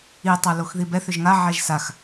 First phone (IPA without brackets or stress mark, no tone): i